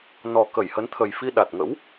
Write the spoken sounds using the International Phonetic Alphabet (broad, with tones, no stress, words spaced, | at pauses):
nɔ˨˩ kə˧˩jhə˨˦nt̪ʰə˨˩jfi˧ ɗa˨˩t̚ŋə̰˧˥w